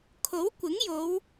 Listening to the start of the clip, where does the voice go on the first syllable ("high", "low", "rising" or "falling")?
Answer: rising